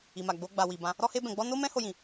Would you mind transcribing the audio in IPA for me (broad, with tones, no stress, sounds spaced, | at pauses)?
i˨ m a˨ ɡ͡b o˧ ɡ͡b a˨ w i˨ b ã˧ | ɾ ɔ˦ h e˦ b ɛ̃˧ ɡ͡b ɔ˦ n o˦ m ɛ̃˦ h o˦ j ĩ˧